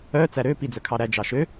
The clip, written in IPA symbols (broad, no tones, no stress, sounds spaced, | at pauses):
œ t͡s æ ɾ ø p i d͡z œ kʰ ɑ ɾ æ d͡ʒ ɑ ʃ ø